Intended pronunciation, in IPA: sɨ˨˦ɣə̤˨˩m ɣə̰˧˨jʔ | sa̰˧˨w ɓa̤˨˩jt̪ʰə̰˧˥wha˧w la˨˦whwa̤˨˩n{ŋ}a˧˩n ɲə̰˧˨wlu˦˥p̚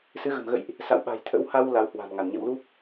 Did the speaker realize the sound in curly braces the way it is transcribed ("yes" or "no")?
yes